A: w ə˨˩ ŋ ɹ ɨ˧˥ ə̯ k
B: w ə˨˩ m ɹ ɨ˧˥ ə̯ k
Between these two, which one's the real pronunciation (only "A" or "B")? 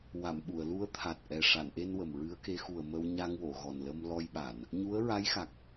B